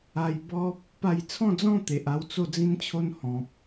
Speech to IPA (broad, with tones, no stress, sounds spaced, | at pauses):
a˧ j b ɔ˦ p̚ | p a˥˧ j t͡sʰ ɔ̃˥˧ d͡z ɔ̃˥˧ t̪ e˨ ʔ a˥˧ w t͡s o˥˧ d͡z ĩ˦ n t͡ɕʰ o˦ n h ɔ̃˨ p̚